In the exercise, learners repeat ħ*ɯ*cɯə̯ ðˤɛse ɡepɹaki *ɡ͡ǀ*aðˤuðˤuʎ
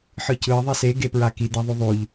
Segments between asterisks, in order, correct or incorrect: correct, incorrect

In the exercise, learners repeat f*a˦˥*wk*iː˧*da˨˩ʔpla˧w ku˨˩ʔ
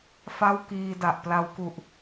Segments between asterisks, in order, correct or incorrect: incorrect, correct

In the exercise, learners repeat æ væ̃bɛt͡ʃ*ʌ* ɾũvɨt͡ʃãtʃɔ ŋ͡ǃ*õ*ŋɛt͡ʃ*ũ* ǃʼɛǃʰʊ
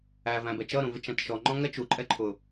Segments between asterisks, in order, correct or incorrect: correct, incorrect, incorrect

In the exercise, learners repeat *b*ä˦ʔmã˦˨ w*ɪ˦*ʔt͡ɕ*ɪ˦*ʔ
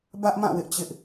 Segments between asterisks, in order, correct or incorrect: correct, correct, correct

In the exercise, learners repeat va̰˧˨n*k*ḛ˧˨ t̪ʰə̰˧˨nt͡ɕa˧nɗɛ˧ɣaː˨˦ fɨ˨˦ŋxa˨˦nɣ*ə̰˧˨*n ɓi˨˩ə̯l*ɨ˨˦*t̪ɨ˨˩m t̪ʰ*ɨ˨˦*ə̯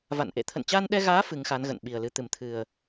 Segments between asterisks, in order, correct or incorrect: incorrect, correct, correct, incorrect

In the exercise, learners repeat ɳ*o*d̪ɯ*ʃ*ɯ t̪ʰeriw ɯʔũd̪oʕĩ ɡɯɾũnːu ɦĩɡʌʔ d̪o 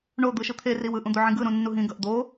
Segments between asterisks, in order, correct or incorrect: correct, correct

